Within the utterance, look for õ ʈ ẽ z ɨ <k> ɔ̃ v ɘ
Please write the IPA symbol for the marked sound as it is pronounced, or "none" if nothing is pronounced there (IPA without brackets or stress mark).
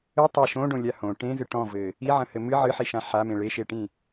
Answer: ʈ